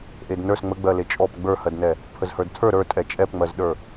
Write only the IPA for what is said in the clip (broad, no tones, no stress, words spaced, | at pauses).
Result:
ʔednə˞s ŋ͡məɡ͡bɜle t͡ʃʼɔp ɡ͡bə˞hɜdnɛ | pʰəzhə˞dtʰə˞ ɾə˞ tʼɛt͡ʃʼɛpŋ͡mɜzɗə˞